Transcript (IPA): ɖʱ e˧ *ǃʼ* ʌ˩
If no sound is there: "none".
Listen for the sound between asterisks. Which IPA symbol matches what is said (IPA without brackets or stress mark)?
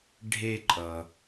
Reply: ǃʼ